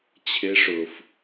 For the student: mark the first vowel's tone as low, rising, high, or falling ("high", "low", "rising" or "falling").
rising